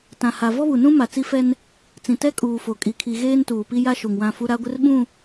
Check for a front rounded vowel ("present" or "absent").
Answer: absent